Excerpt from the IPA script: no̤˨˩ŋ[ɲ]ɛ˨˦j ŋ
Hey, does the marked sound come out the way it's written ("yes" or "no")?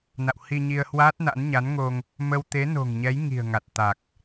yes